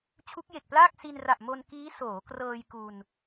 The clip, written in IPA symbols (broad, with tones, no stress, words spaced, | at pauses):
t͡ɕʰu˦˥k̚je˨˩k̚plaː˥˩k̚ si˧nra˨˩ʔmo˧n kiː˦˥ soː˩˦krɤː˧j ku˧n